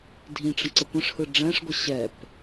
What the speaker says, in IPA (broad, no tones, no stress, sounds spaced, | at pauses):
dʱ ĩ ʈ͡ʂ ə̃ ǀ ə kʷ ə̃ ʂ h ɯ ɖ͡ʐ ɛ̃ ʂ ɡʷ ə ɕ ɛ p